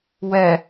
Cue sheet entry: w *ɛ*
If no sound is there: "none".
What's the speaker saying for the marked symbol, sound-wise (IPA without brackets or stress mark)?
ɛ